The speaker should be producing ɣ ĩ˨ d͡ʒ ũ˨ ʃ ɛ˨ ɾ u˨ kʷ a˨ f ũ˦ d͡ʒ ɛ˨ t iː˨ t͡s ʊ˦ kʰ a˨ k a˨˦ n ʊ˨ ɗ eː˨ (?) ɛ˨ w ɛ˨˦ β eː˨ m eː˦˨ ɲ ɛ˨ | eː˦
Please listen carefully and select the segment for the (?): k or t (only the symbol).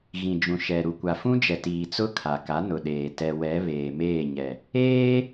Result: t